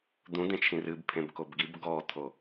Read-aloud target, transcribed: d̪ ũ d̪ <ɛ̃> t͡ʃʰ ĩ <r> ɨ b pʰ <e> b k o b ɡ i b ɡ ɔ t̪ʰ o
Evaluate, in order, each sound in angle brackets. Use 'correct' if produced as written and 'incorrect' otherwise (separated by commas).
incorrect, correct, incorrect